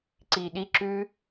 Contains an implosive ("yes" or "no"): yes